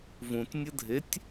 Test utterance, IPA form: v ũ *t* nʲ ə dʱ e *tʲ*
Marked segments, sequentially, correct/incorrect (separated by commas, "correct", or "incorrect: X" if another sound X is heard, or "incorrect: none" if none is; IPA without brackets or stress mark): correct, correct